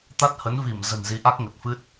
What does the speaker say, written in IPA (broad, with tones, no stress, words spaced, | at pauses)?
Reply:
t̪a˦˥t̚hə˨˦nvi˧˩m zə̤˨˩nzi˨˦ʔa˦˥k̚ ŋə˨˩t̚fɨ˦˥t̚